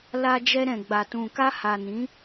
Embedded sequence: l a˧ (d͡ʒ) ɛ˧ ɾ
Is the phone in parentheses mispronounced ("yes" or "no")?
no